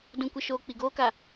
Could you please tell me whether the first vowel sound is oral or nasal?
nasal